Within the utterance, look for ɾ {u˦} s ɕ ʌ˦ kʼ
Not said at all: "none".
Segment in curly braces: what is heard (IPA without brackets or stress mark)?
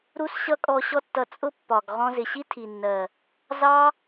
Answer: u˦